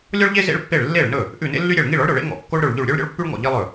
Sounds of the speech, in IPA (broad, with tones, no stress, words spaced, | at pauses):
lʲɔ˥ɭʎe˥ zḛ˥ɭpːe˥˩ɭ lːe˥˩ɭnɵ˥˩ | ʔʉ˥˩nḛ˥lːy˥ɾʲe˥˩ɭ ŋi˥˩ɭɔ˥ɭɾɵ˥˩ɭḛ˥ ŋɔ̰˥˩ kːo˥ɭɾɵ˥˩ɭʎʉ˥˩ɭ ɾʲø˥ɭ ɾʲɔ̰˥ɭpːy˥ɭŋɔ̰˥˩ ʎi˥lˠɵ˥˩